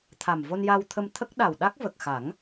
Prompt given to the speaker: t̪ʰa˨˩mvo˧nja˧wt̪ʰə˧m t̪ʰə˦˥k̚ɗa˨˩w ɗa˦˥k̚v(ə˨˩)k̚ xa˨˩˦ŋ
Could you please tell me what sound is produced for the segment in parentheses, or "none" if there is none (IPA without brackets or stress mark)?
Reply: ə˨˩